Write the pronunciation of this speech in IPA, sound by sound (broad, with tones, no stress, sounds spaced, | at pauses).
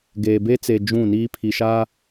ɡ eː˨ b e˦ t͡s e˨ d͡ʒ ũ˦˨ n iː˦ pʰ i˨ ʃ a˦